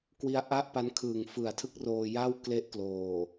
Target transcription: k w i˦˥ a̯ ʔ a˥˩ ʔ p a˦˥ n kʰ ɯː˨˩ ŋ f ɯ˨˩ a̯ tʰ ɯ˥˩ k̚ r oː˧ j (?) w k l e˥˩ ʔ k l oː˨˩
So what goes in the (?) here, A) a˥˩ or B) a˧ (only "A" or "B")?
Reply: A